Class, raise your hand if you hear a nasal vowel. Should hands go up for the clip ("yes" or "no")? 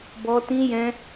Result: yes